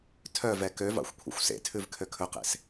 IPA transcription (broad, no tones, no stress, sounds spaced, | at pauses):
tʰ œ v ɛ k ø v ɑ̰ xʷ kʷʰ ḛ xʷ s ḛ tʰ ʉ v kʰ ø kʰ ɵ q ḛ s